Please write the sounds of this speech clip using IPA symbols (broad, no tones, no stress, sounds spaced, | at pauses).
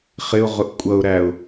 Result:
χ ɪ ʊ̯ ʁ ʊ ʔ kʷʼ ʌ ʊ̯ ɾ æ ʊ̯